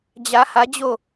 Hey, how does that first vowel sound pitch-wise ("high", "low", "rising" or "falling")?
rising